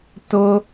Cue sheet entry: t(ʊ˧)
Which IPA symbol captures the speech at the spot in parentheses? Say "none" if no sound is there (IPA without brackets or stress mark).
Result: ʊ˧